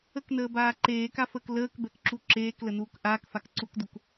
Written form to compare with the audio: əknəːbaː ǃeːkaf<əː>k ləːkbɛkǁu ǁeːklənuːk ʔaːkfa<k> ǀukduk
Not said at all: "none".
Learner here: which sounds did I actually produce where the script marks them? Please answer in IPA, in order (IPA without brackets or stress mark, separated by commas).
əː, k